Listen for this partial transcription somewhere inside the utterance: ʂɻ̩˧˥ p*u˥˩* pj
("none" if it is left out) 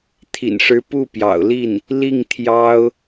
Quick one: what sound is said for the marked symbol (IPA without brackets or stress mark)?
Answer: u˥˩